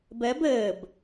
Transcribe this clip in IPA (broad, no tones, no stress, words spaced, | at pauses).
bɜb əːb